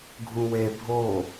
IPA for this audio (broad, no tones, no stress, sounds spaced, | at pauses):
ɡʱ ũ w e bʱ o